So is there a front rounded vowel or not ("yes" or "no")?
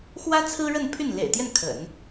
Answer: yes